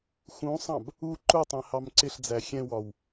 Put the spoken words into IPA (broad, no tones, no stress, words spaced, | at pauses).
xũsˤɑ̃b | u ǃʊtˤɛ̃ hɑmǀɪɬd͡zæ xʲɛ̃wɒw